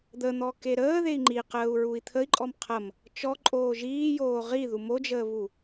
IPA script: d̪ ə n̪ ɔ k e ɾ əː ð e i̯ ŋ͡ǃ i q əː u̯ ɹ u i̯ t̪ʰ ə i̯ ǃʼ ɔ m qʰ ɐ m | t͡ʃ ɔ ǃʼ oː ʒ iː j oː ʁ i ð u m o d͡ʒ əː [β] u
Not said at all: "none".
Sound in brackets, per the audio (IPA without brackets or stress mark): β